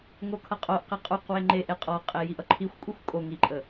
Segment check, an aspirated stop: present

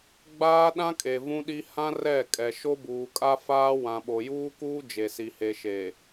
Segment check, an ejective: present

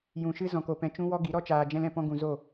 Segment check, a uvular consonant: absent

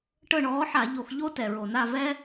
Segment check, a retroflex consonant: present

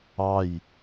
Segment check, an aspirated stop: absent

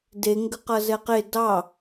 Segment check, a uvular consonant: present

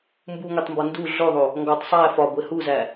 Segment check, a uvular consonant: absent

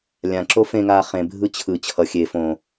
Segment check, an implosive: absent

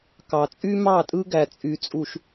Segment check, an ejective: present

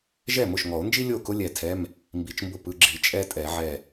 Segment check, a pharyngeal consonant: present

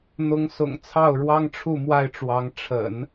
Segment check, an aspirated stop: present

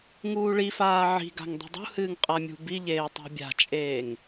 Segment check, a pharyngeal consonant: present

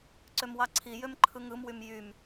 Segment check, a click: present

